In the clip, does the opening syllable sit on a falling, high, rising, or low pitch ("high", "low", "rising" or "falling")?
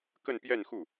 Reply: falling